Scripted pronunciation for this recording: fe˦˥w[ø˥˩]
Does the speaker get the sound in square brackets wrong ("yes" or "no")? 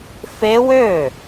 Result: no